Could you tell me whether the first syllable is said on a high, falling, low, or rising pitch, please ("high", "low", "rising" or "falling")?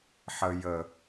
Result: low